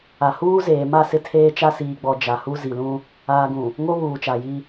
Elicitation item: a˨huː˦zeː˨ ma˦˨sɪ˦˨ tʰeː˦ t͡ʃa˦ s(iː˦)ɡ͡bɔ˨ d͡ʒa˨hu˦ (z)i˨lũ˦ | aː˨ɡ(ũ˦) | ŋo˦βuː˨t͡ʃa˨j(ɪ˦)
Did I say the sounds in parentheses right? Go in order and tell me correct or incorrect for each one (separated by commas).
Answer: incorrect, correct, incorrect, incorrect